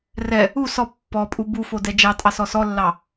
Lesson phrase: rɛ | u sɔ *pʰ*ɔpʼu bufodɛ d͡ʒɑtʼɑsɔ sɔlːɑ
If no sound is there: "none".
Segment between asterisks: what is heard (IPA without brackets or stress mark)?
pː